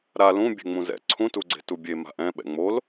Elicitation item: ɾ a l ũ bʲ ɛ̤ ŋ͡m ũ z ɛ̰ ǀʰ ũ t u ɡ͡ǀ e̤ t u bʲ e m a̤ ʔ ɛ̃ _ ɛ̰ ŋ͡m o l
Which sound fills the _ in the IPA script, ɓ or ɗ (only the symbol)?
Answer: ɓ